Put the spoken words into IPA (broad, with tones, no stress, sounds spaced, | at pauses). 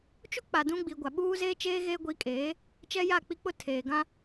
t͡ʃ u˦ k͡p a˨ d ũ˦ ɡ͡b i˨ ɡʷ a˨ ɓ uː˦ z eː˦ t͡ʃ eː˦ ɣ eː˦ ɡʷ i˨˦ kʼ eː˨˦ | t͡ʃ ɛ˦ j a˦˨ k͡p i˦ k͡p ʊ˦ tʰ eː˨ ɡ ã˦